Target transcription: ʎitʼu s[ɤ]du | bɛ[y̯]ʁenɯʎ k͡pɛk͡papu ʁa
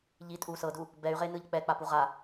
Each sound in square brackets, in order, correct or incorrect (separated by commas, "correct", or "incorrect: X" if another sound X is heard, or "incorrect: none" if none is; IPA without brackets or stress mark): correct, correct